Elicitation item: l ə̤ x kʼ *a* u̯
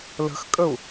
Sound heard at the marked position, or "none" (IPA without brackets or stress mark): ə